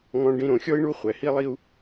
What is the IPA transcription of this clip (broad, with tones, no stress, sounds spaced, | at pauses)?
ŋ ɔ̃˨ ɖ ĩ˨ ɾ õ˨ xʲ ɔ˦ i̯ ɳ u˦ χʷ ɛ˨ h i˦ lˠ i˦ u̯